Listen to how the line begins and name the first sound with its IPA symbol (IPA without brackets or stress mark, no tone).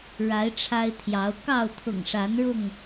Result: ɻ